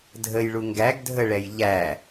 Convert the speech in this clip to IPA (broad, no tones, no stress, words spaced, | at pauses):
dʱəjɭu ŋɡæɡ dʱəɭɛj ʎæ